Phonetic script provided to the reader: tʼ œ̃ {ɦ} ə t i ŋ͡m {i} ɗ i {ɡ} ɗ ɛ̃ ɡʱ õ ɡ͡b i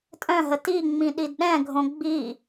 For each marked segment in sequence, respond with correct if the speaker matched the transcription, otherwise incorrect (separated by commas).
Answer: correct, incorrect, incorrect